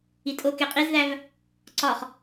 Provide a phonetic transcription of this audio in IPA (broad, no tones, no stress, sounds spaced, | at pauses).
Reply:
i tʼ o k e qʼ i z ð æ v | ǀ ɒ χ